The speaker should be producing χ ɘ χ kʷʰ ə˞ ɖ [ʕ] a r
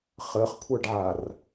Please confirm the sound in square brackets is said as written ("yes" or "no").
yes